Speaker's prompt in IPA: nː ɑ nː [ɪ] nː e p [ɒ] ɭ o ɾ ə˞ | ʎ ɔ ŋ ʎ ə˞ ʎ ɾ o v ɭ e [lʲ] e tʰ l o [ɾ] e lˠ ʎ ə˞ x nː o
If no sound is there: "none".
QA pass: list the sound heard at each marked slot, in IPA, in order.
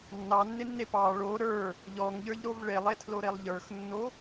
ɪ, ɑ, lˠ, ɾ

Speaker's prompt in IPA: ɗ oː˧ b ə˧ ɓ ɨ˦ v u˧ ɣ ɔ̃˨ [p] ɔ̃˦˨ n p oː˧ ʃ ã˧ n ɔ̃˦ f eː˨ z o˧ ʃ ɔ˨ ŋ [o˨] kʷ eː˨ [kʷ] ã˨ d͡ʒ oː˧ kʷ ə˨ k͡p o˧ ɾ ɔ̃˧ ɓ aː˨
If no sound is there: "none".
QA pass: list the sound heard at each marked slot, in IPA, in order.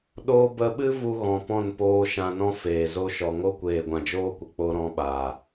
p, o˦, ɡʷ

